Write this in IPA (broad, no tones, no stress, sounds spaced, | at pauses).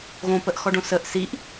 ɣ õ p ə ʔ x ɔ ɖ õ s ə ʔ s i ʔ